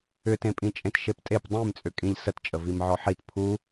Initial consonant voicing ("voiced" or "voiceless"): voiceless